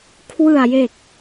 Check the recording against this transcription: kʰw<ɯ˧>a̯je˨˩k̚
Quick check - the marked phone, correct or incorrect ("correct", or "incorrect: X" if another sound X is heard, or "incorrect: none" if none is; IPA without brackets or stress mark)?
incorrect: ɯ˨˩